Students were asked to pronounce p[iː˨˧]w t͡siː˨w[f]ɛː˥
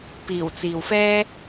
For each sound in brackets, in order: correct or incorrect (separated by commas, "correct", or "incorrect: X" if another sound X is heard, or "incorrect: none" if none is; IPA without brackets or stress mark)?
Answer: incorrect: iː˨˩, correct